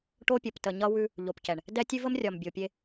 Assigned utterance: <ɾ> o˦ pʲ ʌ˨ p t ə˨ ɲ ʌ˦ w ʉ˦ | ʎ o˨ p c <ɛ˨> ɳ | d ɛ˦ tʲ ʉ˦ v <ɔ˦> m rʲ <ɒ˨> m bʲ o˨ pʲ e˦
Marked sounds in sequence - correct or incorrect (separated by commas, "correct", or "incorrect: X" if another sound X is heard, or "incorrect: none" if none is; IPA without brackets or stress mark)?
incorrect: ʈ, correct, incorrect: ə˦, correct